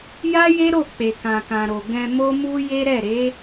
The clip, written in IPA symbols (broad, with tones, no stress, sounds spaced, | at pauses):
j a˦ j e˦ ɾ o˦˨ k͡p e˨ k ã˨ k ã˨ ɾ o˨ ɡ ɛ̃˧ m o˦ m u˦ j e˦ ɾ ɛ˦˨ ɾ e˨˦